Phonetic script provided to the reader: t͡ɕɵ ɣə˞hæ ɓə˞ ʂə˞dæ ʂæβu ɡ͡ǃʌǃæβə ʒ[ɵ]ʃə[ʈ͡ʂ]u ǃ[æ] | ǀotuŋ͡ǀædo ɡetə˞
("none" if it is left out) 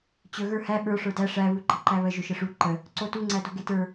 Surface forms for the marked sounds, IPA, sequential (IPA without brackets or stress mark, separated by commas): ɵ, ʂ, ə